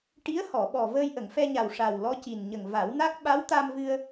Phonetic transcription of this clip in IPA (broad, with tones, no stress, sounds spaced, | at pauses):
ʈ i˧˥ ə̯ h ɔ˨˩˨ ɓ ɔ˨˩ v əː˧ j ʔ ə˨˩˨ ŋ f ɛ˧ ɲ a˨˩ w ʂ a˨˩ w l ɔ˧˥ c i˨˩ n ɲ ə˨˩ ŋ v a˨˩˦ w n a˦˥ k̚ ɓ a˧˥ w t̪ a˧ m v ɨ˧ ə̯